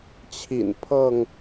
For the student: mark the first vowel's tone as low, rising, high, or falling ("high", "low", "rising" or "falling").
low